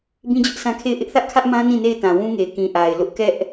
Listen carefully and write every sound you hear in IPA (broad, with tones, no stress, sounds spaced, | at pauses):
b ĩ˦ d͡ʑ ʊ˦ ʔ s ã˦ kʰ e˦˨ ɪ̯ ʔ ɪ˦ ʔ θ ä˦ ʔ kʰ ä˦ ʔ m ã˦ n ĩ˦˨ n e˦˨ ɪ̯ t ã˨ w ũ˦ ŋ e˨ ɪ̯ k ĩ˨ ʔ a˨ ɪ̯ l ʊ˦ ʔ k ɛ˦ ʔ